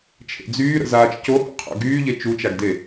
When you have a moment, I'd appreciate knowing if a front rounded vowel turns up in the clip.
yes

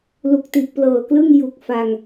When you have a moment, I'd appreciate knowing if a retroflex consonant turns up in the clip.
no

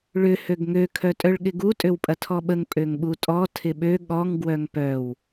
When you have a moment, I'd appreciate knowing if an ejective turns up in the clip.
yes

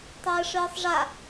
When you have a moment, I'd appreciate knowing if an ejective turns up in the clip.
no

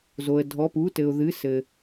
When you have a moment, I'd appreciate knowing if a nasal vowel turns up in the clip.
no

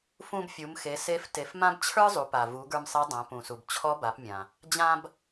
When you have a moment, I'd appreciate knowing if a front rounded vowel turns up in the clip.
no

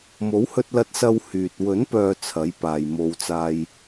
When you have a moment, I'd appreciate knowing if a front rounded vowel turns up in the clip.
yes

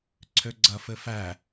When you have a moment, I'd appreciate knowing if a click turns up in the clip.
yes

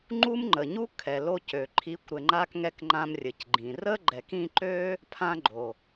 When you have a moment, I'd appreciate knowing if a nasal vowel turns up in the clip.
yes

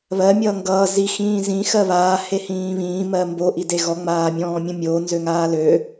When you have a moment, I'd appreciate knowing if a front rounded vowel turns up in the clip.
yes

